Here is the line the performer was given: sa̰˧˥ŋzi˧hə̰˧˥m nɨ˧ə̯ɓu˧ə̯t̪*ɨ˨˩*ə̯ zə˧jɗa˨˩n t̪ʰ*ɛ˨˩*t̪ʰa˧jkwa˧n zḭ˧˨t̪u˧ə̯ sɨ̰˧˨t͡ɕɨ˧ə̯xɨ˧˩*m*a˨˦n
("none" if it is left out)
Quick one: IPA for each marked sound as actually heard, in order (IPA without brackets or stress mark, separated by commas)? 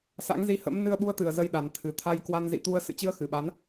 ɨ˨˩, ɨ˨˩, ɓ